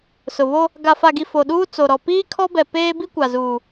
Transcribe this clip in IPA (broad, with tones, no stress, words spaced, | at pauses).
sʊ˨βo˦ | ɡa˨fa˨ɡi˨ fo˨ɗuː˦t͡so˨ɾɔ˨ piː˦kʰɔ˦bɛ˨ peː˦bi˦kʷa˨zuː˨